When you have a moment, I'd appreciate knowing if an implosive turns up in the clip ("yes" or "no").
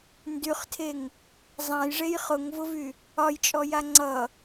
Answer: no